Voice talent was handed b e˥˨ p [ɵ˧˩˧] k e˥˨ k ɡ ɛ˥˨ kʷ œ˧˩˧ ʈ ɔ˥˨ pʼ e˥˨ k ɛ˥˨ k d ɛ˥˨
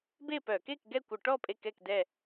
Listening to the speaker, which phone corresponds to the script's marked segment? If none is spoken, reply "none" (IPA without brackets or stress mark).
œ˧˩˧